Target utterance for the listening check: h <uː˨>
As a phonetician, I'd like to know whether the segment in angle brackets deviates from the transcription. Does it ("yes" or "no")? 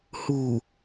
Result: no